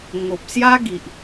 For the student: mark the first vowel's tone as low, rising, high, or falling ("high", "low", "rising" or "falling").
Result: low